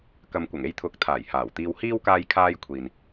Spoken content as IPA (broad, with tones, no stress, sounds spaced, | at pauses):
k ɐ˨ m kʷ ɐ˨˩ ŋ e˧ j t̪ʰ ʊ˨˥ k̚ t̪ʰ aː˨˩ j h aː˨˩ w t̪ iː˧ w h iː˥ w k aː˧ j kʰ aː˧ j kʷʰ iː˨ n